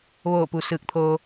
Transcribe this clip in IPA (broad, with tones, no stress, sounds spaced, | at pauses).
ʋ oː˧˩ p u˩˧ s ɯː˧˩ k̚ t̪ʰ oː˧